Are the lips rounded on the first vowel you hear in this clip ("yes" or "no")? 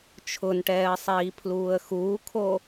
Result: yes